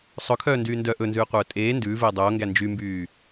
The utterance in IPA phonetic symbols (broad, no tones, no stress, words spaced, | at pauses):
sˤɵkʰœː ndyːndœ ʔɵnzʉː qʷœːtʼeː ndʉːveː dˤoːŋɡæ nd͡ʒymbyː